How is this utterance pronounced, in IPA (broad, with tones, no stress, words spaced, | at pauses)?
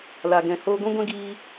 la˨ɡɛ̃˨ hoː˧ɡʷũ˦ɡʷɛ̃˦ ɡiː˧